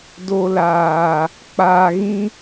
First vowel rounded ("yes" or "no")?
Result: yes